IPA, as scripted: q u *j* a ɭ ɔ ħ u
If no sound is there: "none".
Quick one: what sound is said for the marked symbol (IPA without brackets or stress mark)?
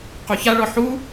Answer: ç